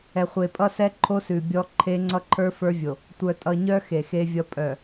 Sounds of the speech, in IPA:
ɛ˨ χʷ e˨ pʼ ʌ˦ s ɛ˦ ǃʰ o˦ s ʉ˨ bʲ ɔ˦ ǃʰ e˦ ŋ͡ǀ ʌ˦ ǃʰ ə˞˦ f ə˞˦ vʲ o˨ | tʷ œ˨ tʼ ʌ˨ ɲ œ˦ x e˨ x e˦ vʲ ʌ˦ pʼ œ˨

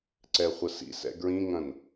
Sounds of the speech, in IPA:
ǀ ɛ χʷ ɐ s ḭ s ɛ̰ ɡ ɹ ĩ ŋ ɐ̃ n

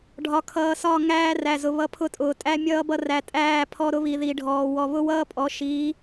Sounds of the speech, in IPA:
ɖʱ ɒ˨ kʰ ʌː˨ s ɒ˦˨ ŋ æː˦ r æ˨ z ʊ˨ β ʌ˦ pʰ ʊ˦ tʼ ʊː˨ tʼ æ˦ mʲ ʌː˦ b ʌ˦ r æ˨ tʼ æː˦˨ pʰ ɔ˦ ɾ ʊ˦ β i˨ ð i˨ ɖʱ ɔː˨ w ɔ˨ β ʊ˦ w ʌː˦ pʼ ɔ˨˦ ʃ i˨˦

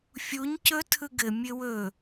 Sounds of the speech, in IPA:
fʲ u ɲ c ɵ tʰ ɯ ɡ ɘ mʲ ɘ w ɵ

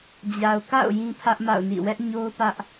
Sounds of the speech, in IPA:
d͡ʑ a˨ ʊ̯ k a̰˦˨ ʊ̯ j ĩ˦ pʰ ä˦ ʔ m a̰˦˨ ʊ̯ n ḭ˦˨ w ɛ˦ ʔ ɲ o˦ ʊ̯ p ä˦ ʔ

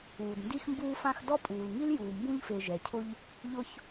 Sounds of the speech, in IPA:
uː˩ d n d i˦ x m b uː˦ f ã˦ x d ɔ˥ pʼ uː˩ l ŋ i˥ l j uː˩ m b ũ˥ ʎ f e˨ ʒ ɛ˩ cʰ ʊ˦ ʎ | ʎ ʊ˦ ç

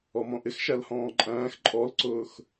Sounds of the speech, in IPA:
ɔ m ɔ̃ ʔ ɪ x ʃ æ l h ɔ̃ː ǃʼ æ̃ː x ǃʼ ɔ l ǀ ʊː x

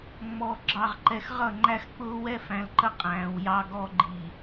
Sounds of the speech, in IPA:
ŋ͡m ɔ˨ ɡ͡ǁ ɑ˨ ʁ ǃ ɛ˨ x ʁ ʌ˦˨ ŋ͡ǃ æ˦ x k͡p ʊː˦ w ɛ˦ f æ̃˨ l ǃ ə˦ qʼ æ̃ː˨ w j ɑ˦ ɡ ɔ˦ ɡ͡ǃ i˨

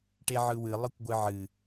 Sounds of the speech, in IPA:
ʈ e ʕ ɯ w ɨ lˠ ɯ kʷ ɡʷ ɨ ʕ ɨ

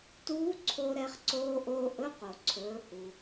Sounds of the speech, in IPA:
t uː˧˥ ǀʰ o˧ ɾ ɛ˧ χ ǀ oː˧ ʔ oː˧ ʔ ɵ˧˥ q o˩ ǀʰ ɵː˩˧ h u˩

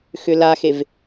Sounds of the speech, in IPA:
x ʏ l a x e v

